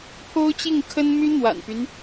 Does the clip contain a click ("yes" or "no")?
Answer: no